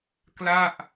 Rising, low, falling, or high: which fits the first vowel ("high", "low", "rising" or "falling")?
falling